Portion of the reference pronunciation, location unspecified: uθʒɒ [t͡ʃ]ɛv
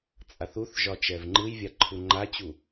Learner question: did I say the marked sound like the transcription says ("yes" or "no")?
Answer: yes